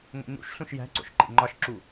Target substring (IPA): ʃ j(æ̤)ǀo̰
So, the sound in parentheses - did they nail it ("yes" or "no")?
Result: yes